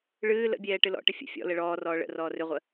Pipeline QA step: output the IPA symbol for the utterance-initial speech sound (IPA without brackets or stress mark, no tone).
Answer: ɭ